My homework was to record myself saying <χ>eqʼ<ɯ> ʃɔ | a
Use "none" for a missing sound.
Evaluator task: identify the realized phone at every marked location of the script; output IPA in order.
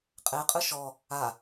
qʼ, ɯ

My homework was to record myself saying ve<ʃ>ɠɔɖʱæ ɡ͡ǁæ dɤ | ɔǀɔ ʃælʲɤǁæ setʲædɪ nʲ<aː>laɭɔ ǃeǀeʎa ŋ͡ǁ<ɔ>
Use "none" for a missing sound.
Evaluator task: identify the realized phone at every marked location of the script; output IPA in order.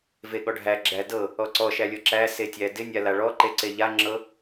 none, a, ɤ

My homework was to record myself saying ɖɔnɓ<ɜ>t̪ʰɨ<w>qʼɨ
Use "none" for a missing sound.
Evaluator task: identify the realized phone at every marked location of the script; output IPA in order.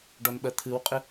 ɜ, w

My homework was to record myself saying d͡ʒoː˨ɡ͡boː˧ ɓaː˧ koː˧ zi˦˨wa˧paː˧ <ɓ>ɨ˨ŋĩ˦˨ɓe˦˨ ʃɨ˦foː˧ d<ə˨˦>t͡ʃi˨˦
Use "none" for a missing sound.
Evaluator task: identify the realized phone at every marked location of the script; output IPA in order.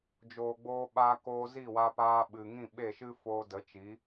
ɓ, ə˨˦

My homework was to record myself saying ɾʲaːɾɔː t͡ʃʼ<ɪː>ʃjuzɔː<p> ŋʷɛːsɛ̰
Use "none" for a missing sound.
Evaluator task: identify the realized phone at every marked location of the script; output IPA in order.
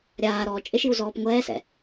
ɪ, p

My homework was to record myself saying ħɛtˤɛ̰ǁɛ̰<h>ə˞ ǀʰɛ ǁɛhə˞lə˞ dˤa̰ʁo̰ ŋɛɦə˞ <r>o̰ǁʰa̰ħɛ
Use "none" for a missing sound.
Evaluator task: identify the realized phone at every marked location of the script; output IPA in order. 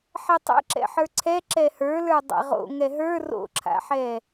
ħ, r

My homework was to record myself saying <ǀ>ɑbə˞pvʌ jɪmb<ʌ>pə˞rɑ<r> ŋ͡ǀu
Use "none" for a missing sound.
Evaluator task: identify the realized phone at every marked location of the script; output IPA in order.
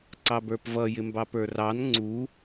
ǀ, ɑ, n

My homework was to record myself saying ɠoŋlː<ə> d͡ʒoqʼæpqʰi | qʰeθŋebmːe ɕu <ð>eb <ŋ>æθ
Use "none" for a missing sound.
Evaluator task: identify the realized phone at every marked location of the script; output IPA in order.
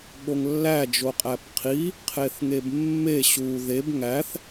æ, ð, ŋ

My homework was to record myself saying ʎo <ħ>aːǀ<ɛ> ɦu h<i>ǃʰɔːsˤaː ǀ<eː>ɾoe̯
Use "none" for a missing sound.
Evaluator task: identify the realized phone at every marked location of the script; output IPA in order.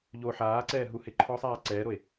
ħ, ɛː, ɪ, ɛː

